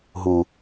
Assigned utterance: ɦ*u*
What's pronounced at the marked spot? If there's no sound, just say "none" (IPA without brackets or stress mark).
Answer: u